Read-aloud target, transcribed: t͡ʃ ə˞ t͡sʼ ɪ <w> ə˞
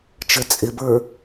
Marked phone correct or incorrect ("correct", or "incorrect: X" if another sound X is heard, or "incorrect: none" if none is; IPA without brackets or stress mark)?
incorrect: b